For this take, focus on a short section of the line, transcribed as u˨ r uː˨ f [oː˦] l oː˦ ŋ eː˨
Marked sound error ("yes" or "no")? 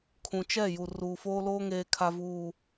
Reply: no